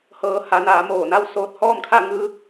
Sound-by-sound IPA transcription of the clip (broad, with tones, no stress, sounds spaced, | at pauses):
h ɤː˩˧ h a˩˧ n aː˩˧ m oː˧˩ n a˥˨ w s oː˧ t̚ h ɔː˥˨ m kʰ a˥˨ ŋ ɯː˧